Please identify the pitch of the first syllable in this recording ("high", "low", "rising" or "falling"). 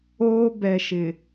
high